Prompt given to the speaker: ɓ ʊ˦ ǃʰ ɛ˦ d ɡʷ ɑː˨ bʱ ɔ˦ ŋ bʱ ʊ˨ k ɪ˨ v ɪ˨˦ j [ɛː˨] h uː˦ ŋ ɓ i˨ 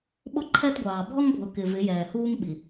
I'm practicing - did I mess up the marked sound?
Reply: no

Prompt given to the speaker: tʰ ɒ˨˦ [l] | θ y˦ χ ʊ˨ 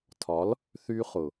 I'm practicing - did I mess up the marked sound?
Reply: no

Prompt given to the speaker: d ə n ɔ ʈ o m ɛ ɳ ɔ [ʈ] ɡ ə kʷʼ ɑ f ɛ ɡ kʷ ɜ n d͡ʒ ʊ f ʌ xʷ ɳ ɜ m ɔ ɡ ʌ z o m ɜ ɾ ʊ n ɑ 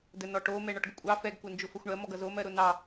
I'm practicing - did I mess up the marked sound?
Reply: no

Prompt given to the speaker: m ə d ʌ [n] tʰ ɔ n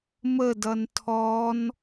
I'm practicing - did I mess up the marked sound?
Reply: no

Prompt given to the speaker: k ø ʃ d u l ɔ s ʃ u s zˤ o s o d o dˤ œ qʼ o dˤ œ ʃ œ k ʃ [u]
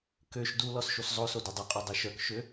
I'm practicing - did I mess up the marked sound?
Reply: yes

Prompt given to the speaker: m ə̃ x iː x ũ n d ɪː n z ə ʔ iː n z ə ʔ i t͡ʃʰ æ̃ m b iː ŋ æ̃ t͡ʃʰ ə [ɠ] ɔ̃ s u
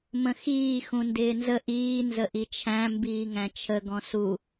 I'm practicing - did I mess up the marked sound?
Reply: yes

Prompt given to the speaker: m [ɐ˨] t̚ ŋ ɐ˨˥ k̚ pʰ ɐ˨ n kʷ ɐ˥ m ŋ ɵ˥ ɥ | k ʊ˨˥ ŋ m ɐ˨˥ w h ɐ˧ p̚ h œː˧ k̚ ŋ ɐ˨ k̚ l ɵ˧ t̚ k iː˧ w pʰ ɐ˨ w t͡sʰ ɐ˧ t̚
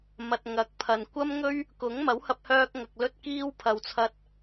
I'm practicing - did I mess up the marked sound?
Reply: no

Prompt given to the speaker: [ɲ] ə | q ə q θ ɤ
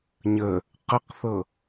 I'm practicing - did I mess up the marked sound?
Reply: no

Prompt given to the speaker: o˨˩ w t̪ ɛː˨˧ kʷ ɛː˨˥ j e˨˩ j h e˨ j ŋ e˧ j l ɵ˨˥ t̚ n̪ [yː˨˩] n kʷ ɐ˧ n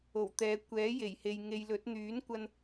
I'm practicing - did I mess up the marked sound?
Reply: yes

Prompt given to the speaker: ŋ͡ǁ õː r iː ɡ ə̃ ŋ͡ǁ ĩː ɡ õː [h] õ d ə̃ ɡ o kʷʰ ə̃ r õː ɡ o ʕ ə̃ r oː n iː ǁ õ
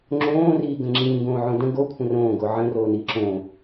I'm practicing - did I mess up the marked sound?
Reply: yes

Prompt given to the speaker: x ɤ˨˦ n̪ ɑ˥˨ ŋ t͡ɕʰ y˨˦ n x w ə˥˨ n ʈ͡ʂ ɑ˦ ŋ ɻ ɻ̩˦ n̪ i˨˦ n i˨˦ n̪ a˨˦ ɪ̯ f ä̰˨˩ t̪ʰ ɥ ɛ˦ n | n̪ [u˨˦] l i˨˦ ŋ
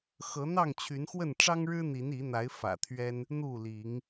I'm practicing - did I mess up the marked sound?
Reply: yes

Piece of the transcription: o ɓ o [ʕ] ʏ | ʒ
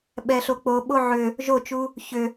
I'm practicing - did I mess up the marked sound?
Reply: no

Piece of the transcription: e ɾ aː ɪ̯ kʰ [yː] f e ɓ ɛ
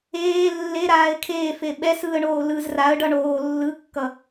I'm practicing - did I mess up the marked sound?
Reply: yes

